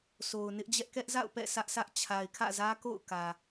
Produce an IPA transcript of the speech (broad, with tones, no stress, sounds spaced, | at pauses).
sʰ o˨ ʊ̯ n ɪ˦ ʔ d͡ʑ ɛ˦ ʔ k ɛ˦ ʔ z a̰˦˨ ʊ̯ p ɛ̰˦˨ sʰ ä˦ ʔ sʰ ä˦ ʔ t͡ɕʰ a˨ ɪ̯ kʰ ä̰˦˨ z ä˦ k o̰˦˨ ʊ̯ k ä˨